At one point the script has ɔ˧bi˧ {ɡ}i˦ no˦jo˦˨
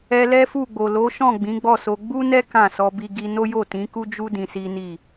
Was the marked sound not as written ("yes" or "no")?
no